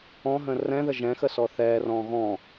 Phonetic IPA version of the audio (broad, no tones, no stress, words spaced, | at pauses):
ɔ̃ɦə̃ rɛ̃ðə ʒɛ̃xəsɔ θɛːrɔ̃ː ɣɔ̃